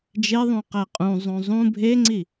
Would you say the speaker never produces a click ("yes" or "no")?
no